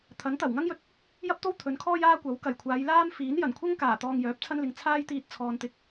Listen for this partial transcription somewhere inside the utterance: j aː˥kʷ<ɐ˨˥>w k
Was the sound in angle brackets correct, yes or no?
yes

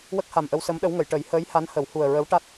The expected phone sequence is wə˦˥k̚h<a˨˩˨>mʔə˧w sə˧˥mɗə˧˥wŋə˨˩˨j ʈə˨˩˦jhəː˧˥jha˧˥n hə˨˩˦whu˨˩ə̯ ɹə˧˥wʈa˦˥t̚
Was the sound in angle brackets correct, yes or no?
no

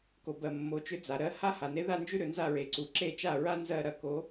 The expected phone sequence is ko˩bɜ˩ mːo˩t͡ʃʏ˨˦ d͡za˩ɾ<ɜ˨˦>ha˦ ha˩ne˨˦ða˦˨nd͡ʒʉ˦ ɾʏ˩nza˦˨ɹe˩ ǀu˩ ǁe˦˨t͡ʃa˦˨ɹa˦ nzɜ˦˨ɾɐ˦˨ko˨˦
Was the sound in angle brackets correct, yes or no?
yes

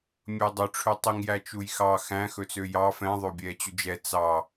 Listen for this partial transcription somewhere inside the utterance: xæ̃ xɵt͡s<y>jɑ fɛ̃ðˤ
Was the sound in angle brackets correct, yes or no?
no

